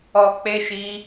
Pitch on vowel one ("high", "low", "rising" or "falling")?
low